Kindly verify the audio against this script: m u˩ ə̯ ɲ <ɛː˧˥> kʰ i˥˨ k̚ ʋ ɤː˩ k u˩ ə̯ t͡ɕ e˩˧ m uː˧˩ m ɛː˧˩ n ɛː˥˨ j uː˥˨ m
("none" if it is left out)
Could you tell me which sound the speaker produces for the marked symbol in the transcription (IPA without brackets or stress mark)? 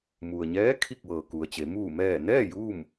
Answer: ɛː˧˥